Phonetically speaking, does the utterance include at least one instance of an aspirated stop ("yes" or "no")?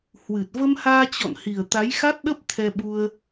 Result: yes